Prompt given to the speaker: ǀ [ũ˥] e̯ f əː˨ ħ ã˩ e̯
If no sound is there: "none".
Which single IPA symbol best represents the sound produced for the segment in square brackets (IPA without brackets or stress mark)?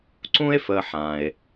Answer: ũ˥